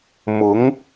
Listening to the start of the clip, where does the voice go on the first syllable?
rising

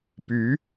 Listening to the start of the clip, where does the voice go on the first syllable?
rising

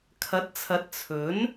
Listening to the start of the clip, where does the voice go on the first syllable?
rising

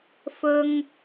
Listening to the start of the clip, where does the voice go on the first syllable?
high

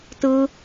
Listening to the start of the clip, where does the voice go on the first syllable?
high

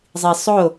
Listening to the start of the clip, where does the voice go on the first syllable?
low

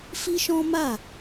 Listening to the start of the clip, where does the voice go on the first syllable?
high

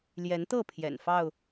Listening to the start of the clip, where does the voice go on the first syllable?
rising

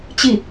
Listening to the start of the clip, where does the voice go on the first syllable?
falling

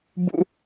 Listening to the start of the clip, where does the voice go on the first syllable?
high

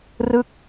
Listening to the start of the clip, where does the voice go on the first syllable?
falling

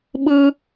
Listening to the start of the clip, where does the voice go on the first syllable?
high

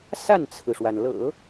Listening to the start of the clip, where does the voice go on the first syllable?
falling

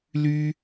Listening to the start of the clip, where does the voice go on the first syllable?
high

